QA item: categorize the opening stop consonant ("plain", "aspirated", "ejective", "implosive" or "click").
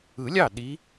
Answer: implosive